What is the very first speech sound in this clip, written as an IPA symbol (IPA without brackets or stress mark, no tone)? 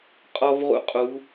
qʼ